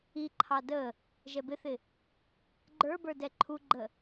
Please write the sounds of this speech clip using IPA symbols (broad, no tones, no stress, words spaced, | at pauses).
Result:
iǃʰɑ də | ʒɛbɪθɪ | ɡ͡ǃə˞bə˞ dɛǃʰuɡ͡ǃə